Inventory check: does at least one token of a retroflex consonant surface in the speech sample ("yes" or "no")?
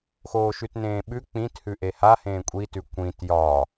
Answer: no